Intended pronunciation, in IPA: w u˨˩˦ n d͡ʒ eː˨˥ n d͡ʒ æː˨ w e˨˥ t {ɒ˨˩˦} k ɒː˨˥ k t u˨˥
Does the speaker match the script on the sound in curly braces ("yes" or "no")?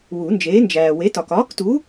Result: no